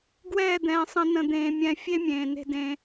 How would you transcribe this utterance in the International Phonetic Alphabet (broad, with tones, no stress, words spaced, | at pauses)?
ɡwɛː˦˨d̪ɛ̃ː˨sˤə̃˧ nə̃˧ d̪ẽː˨mʲɛ̃˨ fʲe˦mʲẽː˨ne̤˧ dẽ˧